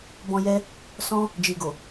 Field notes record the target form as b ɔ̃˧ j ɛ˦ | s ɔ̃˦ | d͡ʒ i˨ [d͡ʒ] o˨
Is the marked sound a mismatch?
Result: yes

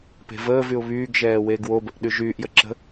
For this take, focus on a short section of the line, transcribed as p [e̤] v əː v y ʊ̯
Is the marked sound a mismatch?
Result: no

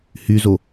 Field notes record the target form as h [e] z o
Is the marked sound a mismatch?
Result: yes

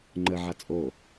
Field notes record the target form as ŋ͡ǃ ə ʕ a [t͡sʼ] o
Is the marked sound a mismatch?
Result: no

